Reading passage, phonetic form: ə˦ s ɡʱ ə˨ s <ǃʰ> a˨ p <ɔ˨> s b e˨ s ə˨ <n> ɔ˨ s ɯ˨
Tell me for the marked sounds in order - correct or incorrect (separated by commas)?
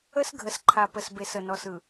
correct, incorrect, correct